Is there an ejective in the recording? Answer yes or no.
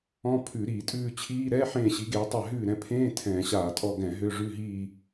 yes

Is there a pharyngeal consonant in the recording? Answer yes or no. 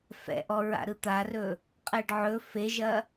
yes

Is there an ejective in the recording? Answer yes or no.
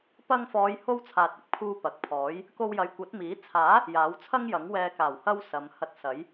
no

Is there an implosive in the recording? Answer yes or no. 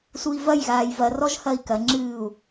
no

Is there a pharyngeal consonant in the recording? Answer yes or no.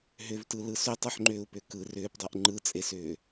yes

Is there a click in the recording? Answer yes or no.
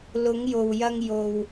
no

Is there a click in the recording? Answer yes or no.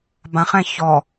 no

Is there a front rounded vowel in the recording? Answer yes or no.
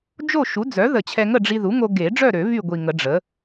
yes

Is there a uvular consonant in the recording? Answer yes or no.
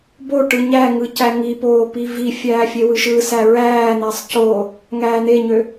no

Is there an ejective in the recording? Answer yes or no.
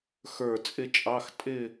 yes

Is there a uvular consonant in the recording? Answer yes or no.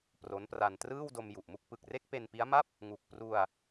no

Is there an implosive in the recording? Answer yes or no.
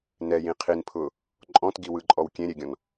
no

